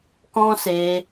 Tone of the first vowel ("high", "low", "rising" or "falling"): high